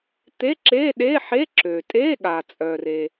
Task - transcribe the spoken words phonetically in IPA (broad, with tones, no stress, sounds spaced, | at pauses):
t̪ e˧˥˧ ǁ e˧˥˧ ɗ e˧˥˧ ħ e˧˥˧ ǁ ø˩ tʼ e˧˥˧ ɠ a˩ t͡sʼ œ˩ r e˩